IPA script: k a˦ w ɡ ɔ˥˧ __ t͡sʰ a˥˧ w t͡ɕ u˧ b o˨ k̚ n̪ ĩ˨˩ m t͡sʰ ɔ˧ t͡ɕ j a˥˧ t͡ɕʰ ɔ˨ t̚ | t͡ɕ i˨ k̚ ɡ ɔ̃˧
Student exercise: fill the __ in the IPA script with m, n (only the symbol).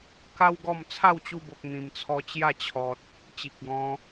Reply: m